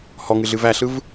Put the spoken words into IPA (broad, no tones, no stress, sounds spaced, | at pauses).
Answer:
h ɔ ŋ ɨ ɮ ɨ v æ ɬ ɯ v